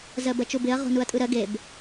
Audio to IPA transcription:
z ɜ b ɜ t͡ʃ u b ɪ ɐ̯ ʁ o̤ n u ɐ̯ tʼ ɯ ɾ ɜ ɡ e b

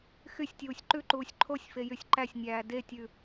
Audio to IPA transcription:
x y sʲ tʲ uː sʲ ǃ ʉ ǃ uː sʲ ǃʰ o sʲ f e j y sʲ ǃ æ sʲ nʲ æː d e tʲ ʉ

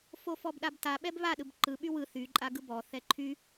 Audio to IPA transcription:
f o f ɔ b ɗ a b t a ɓ ɛ b β a ɗ ɯ b ǃ ɯ ɓ y w ɯ θ y ǃʼ a ɡ ɯ b ɔ θ ɛ ǃʰ y

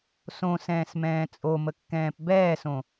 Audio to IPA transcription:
s õ s ɛ̃ː s m ɛ̃ː t͡sʼ o m ə kː ɛ̃ː p b ɛː s õ

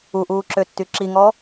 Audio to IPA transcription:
u ʔ uː ǁ ø tː y ǁ i ŋ ɔ

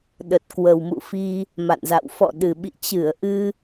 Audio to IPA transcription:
ɗ ə˨˩ t̚ k w ə˨˩ w m ṵ˧˨ f i˧ | m a̰˧˨ n z a̰˧˨ w f ɔ̰˧˨ ɗ ɨ˨˩ ɓ ḭ˧˨ t͡ɕ ɨ˧˩ ə̯ ʔ ɨ˧

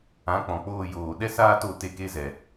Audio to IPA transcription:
ã˨˦ k͡p ɔ̃˨ k͡p oː˧ j oː˨ ɗ ɛ˦ s aː˦ t o˧ t e˧ k e˦ z ɛ˨

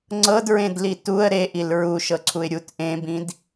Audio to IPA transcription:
ŋ͡ǀ ɤ d ɹ ẽ d l i t u ə̯ ɾ e ʔ i l ɹ u ʃ ɤ ǀʰ u ɪ̯ ɾʲ u t ʔ ẽ b ĩ d

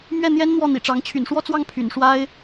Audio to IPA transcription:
m ɥ ɛ˥˩ n̪ j ɛ˥ n n̪ w ɔ˥˩ n̪ ḭ˨˩ ʈ͡ʂ ɑ˧˥ ŋ t͡ɕʰ y̰˨˩ n ʂ w ɔ˥˧ t͡s w ɑ˥˩ ŋ pʰ y̰˨˩ n ʂ w a˥ ɪ̯

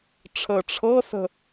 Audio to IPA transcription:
ʈ͡ʂʰ əː ʈ͡ʂʰ ɤ s ə̤

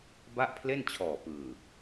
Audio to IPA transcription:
b a˥˩ ʔ pʰ l e˥˩ n t͡ɕʰ ɔː˨˩ p ɯː˨˩

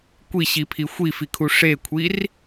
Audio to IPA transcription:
kʷ i ɕ i pʰ i xʷ i f i kʰ u ʂ e kʷʰ i r

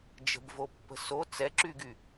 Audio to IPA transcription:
d͡ʒ ə̤ b v o pː ə̤ s o t͡s ɛ ǁ y ɡ y

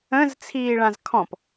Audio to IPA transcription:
ə̃ z t͡sʰ iː ɭ ã z kʰ ɔ̃ p

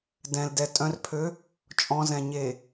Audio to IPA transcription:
d ɛ̃ l d ɛ tʼ œ̃ r pʰ ø | t͡ʃʼ ɔ̃ z ɛ̃ ɲ e

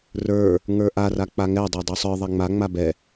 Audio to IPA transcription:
r ə˞ | ŋ ə˞ ʔ a r a k͡p a ŋ ɛ dˤ ə˞ dˤ u sˤ ə˞ ðˤ ɛ ŋ͡m a ŋ͡m a b ɛ

